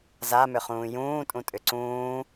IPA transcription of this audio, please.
z a m ʏ χ ũː j ũː tʼ ũ tʼ ʏ ǀ ũː

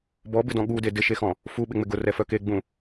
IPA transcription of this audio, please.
b ɔ b ɪ d ɔ̃ ɠ u d e d ɪ ʃ e x ɔ̃ | f u ɓ ɪ ŋ͡m ɪ ɡ ʊ r ɛ f œ k e ɡ͡b ũ

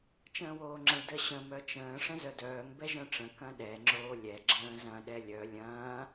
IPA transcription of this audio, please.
t͡ʃ ə̃ː w oː ŋ͡ǁ ə̃ ɭ d ə ɕ ə̃ m œ t͡ʃ ə̃ː ʂ ə̃ z œ d œː ŋ b ɛ ʒ œ̃ ʈ͡ʂ ə̃ k ɐ̃ ɗ ɛ ŋ͡ǁ oː lʲ ɛ ɡ͡ǁ ə̃ː z ɐ̃ ɗ ɛ lʲ œ lʲ ɐ̃ː

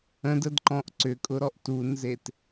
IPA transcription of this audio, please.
ə̃ d ə d ǃ ɔ̃ ʔ ǀ ʏ kʼ ʊ ɾ ɔ ʔ t u n z e t

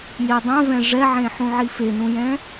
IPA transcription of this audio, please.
j e dˤ ɛ̃ v ɛ̃ ʐ ɛ ʕ ẽ ħ ũ ʕ i f e n ũ j ɛ̃

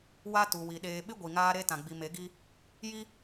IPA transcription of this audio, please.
w a˦ t u˨ w i˨ ɗ eː˨ ɓ ɪ˦ ɡʷ i˨ ŋ aː˦ ɾ e˦ t ã˨ ɡ͡b i˨ m e˨˦ ɡ i˦ | j i˦

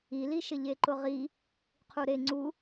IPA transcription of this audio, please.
i l i ʃ ɪ ʎ e ǃ ʊ ʁ i | qʰ u ɾ e ŋ͡ǀ u

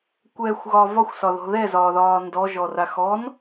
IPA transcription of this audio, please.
kʷ ɛ xʷ ɣ ɒ v ɒ xʷ s ɒ ð ɔ̤ ð ɛ z ɒː ð ɒː n d ɔ ʒ ɔ r a x ɔ n

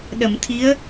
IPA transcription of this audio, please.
ɗ ə˨˩˨ m t̪ʰ i˧˥ ə̯

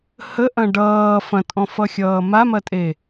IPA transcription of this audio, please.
h ə ʔ ɐ̃ ɖ ʌː f ɐ̃ tʼ ɔ̃ f ʌ xʲ ʌː m a m ɐ tʼ e

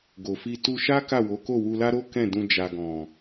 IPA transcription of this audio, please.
ɡ o˨ f i˧ t u˧ ʃ a˦ k a˦˨ w o˨˦ k o˦˨ w u˧ l a˦ ɾ o˦ k ɛ̃˦˨ d ũ˧ d͡ʒ a˨ ɡ ɔ̃˨

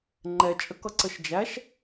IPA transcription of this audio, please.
ŋ͡ǃ ɛ t͡ʃʼ ə k ʌ ǀ ə ʃ d͡ʒ æ ʃ

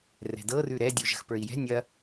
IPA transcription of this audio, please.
r ɛ̤ d ɤ r ʉ ɾ ɛ dʲ u ʒ ə̤ x p ə˞ i̯ j ɛ̤ nʲ ɐ

